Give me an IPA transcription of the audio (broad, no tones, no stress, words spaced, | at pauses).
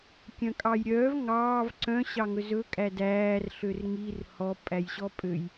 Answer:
kʲœ̃kʼɑjɾʲœːv ŋɑːv ǀœ̃ ɕɑŋɵzɵ kʼædæːr ɬørŋir hɔ pʼæjɕɔpʼøj